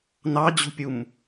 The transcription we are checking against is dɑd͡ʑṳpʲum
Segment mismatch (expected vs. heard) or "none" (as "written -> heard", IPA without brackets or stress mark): d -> n